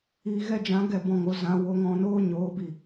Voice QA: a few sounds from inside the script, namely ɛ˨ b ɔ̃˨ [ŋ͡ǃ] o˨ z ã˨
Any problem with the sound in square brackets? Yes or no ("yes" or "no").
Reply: yes